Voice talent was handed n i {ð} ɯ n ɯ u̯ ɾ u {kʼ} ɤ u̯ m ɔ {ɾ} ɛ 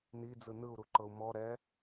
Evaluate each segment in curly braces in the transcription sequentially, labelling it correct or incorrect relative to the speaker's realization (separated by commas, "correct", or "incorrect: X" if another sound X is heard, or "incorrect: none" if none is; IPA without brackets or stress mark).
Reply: incorrect: d͡z, incorrect: ǃ, correct